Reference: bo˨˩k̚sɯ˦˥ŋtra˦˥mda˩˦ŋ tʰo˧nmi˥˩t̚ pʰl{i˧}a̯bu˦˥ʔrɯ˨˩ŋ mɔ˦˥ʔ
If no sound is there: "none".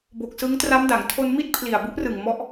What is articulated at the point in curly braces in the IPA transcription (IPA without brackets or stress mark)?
i˨˩